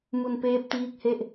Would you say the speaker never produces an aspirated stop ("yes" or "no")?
yes